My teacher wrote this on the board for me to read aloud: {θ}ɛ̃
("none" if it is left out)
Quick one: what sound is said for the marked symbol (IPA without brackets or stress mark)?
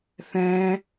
θ